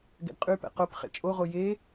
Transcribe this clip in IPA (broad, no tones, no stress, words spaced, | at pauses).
ɡɛ̰dqʼypɛ̰ qop χḛt͡ʃʼoʁo je